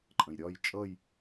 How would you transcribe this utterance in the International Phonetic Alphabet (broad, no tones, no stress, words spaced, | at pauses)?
ǃʼə̃jɾʲɒj t͡ʃʼʌj